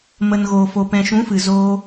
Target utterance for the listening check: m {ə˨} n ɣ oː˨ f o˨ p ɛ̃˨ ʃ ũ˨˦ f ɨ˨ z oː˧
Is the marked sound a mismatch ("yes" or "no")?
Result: no